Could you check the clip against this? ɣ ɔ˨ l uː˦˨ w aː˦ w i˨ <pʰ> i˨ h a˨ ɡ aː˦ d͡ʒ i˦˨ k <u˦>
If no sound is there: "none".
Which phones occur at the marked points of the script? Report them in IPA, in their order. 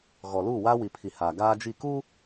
pʰ, u˦

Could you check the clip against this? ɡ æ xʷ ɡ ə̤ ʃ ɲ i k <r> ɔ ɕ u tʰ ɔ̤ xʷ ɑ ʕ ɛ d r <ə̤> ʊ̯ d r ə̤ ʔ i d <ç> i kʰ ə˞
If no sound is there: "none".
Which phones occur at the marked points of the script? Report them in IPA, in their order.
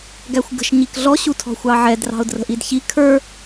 ɮ, ɑ̤, ç

